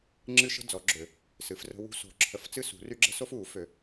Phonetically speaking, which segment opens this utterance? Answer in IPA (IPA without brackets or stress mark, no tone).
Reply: ŋ͡ǁ